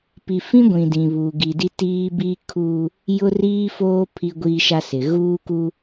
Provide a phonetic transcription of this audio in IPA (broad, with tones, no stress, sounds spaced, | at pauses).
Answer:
p i˨ f ĩ˦ ɡʷ ĩ˨ d ĩ˨ β uː˨ ɡ i˨ d i˦ t iː˦ b iː˦ kʰ uː˦ | j ʊ˦ r iː˦ f oː˦ pʰ i˦ ɡʷ iː˦ ʃ a˦ s ɪ˨ ɣ uː˦ k uː˦